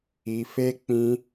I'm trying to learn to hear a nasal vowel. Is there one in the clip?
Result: yes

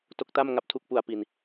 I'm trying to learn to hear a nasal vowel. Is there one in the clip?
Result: no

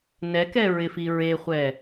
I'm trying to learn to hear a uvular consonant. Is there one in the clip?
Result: yes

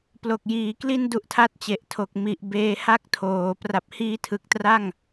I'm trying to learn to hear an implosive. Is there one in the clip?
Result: no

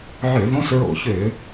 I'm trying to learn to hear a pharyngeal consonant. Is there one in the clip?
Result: yes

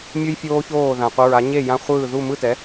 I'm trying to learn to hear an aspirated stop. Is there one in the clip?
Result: no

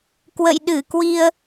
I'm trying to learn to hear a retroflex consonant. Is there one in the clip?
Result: no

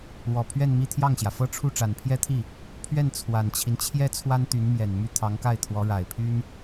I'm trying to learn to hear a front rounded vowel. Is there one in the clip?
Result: yes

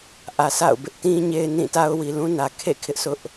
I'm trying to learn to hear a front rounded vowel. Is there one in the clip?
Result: no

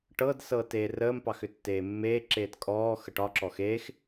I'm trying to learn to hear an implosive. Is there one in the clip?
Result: no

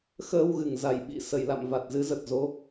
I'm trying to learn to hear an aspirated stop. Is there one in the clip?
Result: no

